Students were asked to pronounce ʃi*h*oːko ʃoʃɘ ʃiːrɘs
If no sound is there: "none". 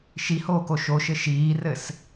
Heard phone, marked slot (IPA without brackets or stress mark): h